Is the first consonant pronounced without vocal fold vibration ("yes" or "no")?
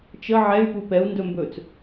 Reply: yes